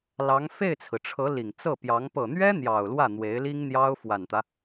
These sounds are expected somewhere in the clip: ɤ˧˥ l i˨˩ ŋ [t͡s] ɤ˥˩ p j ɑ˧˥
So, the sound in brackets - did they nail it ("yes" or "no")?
yes